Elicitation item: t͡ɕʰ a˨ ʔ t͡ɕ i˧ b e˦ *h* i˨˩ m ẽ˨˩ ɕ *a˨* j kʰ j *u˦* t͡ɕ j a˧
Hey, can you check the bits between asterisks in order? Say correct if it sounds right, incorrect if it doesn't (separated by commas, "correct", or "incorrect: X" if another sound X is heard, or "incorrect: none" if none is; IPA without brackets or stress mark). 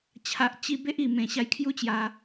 incorrect: ʔ, incorrect: a˧, correct